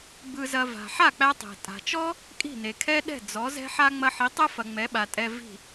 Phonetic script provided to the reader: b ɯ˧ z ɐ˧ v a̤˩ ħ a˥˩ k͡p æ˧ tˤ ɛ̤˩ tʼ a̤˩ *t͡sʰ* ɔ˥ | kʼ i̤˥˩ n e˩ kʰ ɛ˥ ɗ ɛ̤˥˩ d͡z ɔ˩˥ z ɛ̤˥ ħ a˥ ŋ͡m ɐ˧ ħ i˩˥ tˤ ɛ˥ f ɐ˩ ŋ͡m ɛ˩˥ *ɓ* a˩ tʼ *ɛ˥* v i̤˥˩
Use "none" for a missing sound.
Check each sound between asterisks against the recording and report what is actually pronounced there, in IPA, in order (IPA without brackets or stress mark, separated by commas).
t͡ʃ, ɓ, ɛ˧